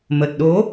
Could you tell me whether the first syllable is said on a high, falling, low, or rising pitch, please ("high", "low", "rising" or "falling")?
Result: low